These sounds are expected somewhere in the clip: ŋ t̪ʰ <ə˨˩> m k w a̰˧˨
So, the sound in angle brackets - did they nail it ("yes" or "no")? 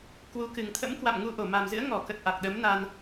no